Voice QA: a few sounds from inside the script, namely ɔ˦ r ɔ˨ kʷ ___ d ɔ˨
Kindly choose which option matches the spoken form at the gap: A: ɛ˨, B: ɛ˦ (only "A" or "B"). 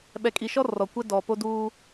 B